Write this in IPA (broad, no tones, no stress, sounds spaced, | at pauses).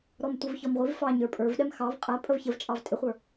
ɾ ɔ m tʷ ə v ç ɔ m ʁʷ i v f ɑ ɲ ə˞ pʼ ə˞ v ɗ ɛ m x ɑ v qʼ æ pʼ ə v ç ə v t͡ʃʼ ɑ v tʼ ɪ χʷ ə˞